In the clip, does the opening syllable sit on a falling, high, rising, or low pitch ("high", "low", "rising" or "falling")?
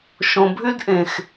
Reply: low